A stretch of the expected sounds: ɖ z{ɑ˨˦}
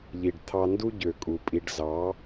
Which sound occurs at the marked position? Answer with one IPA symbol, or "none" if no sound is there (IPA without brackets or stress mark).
ɑ˨˦